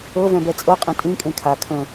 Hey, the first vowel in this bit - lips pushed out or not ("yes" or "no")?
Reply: no